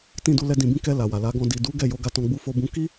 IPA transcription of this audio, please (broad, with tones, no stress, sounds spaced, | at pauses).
t ĩ˧ d u˧ l ɛ˧ d ĩ˧ b ĩ˦ k ɛ˧ l a˨ w a˨ l a˨˦ ɡ ɔ̃˧ d i˨ d u˨˦ ɡ ɛ˦˨ j o˨˦ ɡ a˧ t ɔ̃˧ ɡ͡b u˧ f o˧ b ũ˧ k i˦